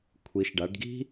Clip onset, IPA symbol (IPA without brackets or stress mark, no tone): kʷʰ